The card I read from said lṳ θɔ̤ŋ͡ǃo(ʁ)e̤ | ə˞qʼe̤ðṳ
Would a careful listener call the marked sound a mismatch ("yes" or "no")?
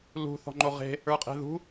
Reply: no